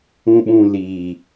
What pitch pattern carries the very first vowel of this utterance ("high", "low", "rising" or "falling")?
low